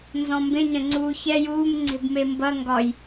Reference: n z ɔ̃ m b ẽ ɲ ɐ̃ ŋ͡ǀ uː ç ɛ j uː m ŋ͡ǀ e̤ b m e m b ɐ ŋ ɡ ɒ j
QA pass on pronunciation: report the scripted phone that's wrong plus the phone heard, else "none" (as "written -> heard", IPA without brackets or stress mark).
none